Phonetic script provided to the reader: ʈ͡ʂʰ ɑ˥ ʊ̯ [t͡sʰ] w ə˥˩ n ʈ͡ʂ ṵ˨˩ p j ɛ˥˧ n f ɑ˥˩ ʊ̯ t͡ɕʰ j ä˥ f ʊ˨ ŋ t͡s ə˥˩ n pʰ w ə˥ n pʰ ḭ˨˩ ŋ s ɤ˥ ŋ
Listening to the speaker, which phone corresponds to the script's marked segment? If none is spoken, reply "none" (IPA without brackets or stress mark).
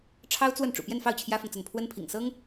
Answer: t͡s